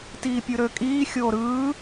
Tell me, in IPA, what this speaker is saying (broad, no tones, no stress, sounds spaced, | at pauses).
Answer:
t iː pʲ ɯ ɾ ø kʼ iː xʲ oː ɾ ɯː